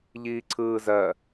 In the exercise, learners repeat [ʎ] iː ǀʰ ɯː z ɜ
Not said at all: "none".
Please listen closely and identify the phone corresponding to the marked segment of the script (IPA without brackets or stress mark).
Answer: ʎ